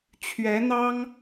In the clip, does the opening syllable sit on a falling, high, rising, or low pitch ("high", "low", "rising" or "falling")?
rising